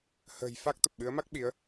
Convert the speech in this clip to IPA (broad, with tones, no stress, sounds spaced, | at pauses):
h ə̤ː˨˩ j f a˦˥ k̚ t̪ ə˨˩ p̚ ɓ ɨ˨˦ ə̯ m a˦˥ k̚ ɓ i˨˦ ə̯